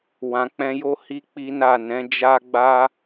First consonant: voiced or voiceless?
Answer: voiced